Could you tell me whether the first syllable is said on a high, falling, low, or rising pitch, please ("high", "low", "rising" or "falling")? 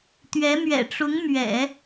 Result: rising